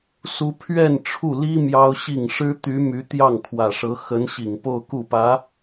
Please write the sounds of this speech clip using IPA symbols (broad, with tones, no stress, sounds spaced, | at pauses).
s u˥ pʰ ɥ ɛ˥˧ n ʈ͡ʂʰ u˥˩ l i˥ m j ɑ˥ ʊ̯ ɕ i˥˩ ŋ ʂ ɻ̩˥ t̪ y˧˥ m y˧˥ t̪ j ɑ˥˩ ŋ kʰ w ä˨˩ ʂ ɤ˧˥ x ə˧˥ n ɕ i˨˩ ŋ p o˥˧ ʊ̯ k u˥˩ p ä˧˥